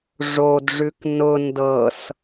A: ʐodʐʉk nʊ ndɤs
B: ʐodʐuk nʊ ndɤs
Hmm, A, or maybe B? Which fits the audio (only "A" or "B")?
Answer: A